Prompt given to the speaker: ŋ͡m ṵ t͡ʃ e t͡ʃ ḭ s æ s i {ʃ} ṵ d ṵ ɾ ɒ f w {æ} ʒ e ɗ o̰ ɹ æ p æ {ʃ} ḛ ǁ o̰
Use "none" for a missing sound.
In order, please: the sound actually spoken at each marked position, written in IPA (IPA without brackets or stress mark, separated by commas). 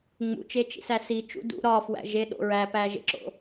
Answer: t͡ʃ, æ̰, ʒ